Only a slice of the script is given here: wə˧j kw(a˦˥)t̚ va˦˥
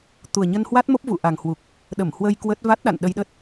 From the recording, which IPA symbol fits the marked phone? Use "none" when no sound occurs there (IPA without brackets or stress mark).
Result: ə˦˥